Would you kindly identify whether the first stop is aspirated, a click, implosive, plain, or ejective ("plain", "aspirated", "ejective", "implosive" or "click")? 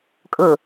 ejective